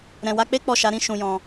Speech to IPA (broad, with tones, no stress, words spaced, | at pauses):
ɾɛ̃˨wa˧k͡pe˦ k͡pɔ˦˨ʃa˨˦ɾĩ˦ ʃũ˧jɔ̃˧